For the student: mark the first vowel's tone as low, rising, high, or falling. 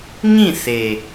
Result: falling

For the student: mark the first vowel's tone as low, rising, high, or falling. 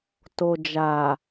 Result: low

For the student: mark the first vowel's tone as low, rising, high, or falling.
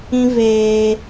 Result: high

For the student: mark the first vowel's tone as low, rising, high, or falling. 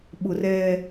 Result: low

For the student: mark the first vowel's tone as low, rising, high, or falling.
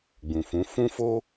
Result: low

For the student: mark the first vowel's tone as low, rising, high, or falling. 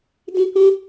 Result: high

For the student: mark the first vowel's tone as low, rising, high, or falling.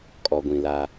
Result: low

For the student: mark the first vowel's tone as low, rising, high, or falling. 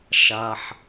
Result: low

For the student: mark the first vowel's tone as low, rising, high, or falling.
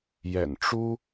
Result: low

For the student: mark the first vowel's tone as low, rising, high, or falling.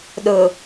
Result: low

